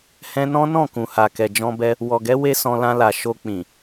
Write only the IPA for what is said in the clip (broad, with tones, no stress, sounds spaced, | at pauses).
h ɛ̃˧ n ɔ̃˦ n ɔ̃˦˨ k ũ˨ h a˨ k ɛ˨ d͡ʒ ɔ̃˧ b ɛ˧ | w ɔ˨ ɡ ɛ˨˦ w e˦ s ɔ̃˧ l ã˧ l a˨ ʃ o˧ k͡p ĩ˨